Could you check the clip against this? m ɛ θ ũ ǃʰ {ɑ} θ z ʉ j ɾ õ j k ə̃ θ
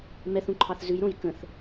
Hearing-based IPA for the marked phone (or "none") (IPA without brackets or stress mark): ɑ